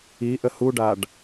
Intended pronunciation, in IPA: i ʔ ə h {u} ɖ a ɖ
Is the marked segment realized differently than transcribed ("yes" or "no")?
no